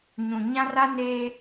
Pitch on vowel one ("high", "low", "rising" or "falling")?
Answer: low